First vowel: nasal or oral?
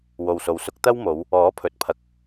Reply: oral